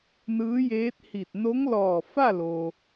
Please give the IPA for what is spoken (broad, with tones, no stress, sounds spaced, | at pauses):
n ɯː˧˥ j eː˧˥ t̚ h i˧˩ t̚ n o˧˥ ŋ l ɔː˧˩ f a˥˨ l o˩